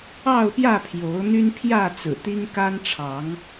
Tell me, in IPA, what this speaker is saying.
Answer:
ɑ˥˨ ʊ̯ p j ä˥˨ pʰ j o˨˦ ʊ̯ n̪ y˦ n pʰ j ä˥˨ t͡s ɹ̩˨˩ t̪ i˦ ŋ k a˦ n ʈ͡ʂʰ ɑ˨˦ ŋ

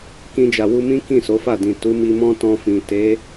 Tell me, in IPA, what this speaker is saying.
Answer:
k ĩ˧ d͡ʒ a˨ w u˧ m ĩ˦ k ĩ˦˨ s o˨˦ f a˦˨ d ĩ˨ t u˨˦ m i˧ m ɔ̃˦ t ɔ̃˧ f ĩ˨ t e˨˦

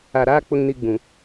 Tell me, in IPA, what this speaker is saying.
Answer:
a˨ ɾ aː˦ k͡p ʊ˨ ŋ n i˨ ɡ͡b ũ˨

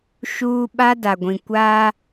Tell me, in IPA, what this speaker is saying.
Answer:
ʃ uː˦ ɓ a˦ d a˨ ɡʷ ĩ˨ kʷ aː˦

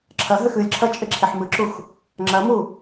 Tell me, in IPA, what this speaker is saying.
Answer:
ǁʰ ɐ ɦ ɘ x ɨ lʲ ǁʰ ɐ t͡ʃʼ e ǁʰ e ħ m ɨ ǁ u x | ŋ͡ǁ ɐ m u

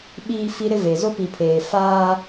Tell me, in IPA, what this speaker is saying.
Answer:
ɓ iː˦ f i˦ ɾ ɪ˦ v e˨ z o˦ p i˨ pʰ eː˨ f aː˦

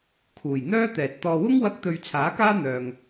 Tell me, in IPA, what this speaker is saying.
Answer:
kʰ uː˨˩ j n̪ œː˥ t̪ ɛː˨ t̚ t̪ ɔː˧ w ʊ˥ ŋ w ɐ˧ k̚ t̪ ɵ˧ ɥ t͡sʰ aː˨˥ k aː˥ n̪ œː˨ ŋ

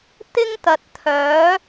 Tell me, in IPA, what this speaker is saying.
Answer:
t̪ ɪ˥ ŋ t̪ ɐ˨ t̚ t̪ʰ œː˨˥

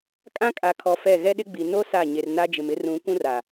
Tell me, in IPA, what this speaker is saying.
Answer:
kʼ ã˦ kʼ a˨ kʰ ɔ˨ f ɛ˦˨ ɣ ɛ˦ ɗ ɪ˦ ɡ͡b i˨ n o˦ s a˦˨ ɲ e˨ r n a˦ d͡ʒ ɪ˨ m ɪ˦ r ũ˨˦ kʷ ũ˦ r a˨

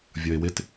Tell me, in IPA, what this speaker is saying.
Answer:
vʲ ʌ ɪ̯ w ɪ t

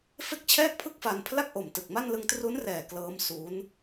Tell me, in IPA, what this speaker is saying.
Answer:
f e˥˩ k̚ t͡ɕʰ ɛː˥˩ k̚ pʰ ɯ˥˩ k̚ f a˧ n pʰ l a˥˩ k̚ ʔ o˨˩ m t ɯ˨˩ k̚ m a˥˩ n l ɯ˧ ŋ t r u˦˥ n r ɛː˨˩ k l ɤː˦˥ m s u˦˥ n

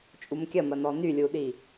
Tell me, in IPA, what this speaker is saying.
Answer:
t͡ʃʼ u m kʲ ɐ m ɐ n ɔ n y lʲ u ɗ i

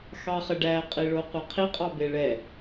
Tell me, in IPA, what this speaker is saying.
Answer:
x ɑ χ ə ɖ æ qʼ i ɭ o qʷ ɛ qʰ i qʼ ɑ b e ɭ ɛ

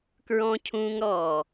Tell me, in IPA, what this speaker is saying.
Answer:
k ɹ ɔ̃˧ cʰ ũː˧ ŋ ɾ ɔː˨

